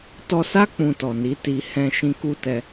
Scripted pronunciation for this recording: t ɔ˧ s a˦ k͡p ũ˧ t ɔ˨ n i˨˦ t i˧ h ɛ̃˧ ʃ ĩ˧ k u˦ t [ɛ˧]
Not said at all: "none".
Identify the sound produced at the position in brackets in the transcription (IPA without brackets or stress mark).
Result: ɛ˧